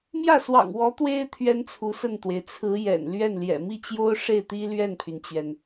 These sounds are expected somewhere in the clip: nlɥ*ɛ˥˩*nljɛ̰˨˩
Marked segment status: correct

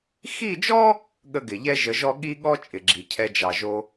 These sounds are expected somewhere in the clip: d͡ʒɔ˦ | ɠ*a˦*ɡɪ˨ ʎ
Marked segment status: incorrect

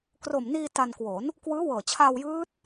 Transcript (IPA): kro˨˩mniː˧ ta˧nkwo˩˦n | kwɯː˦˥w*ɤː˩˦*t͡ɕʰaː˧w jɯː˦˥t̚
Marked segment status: incorrect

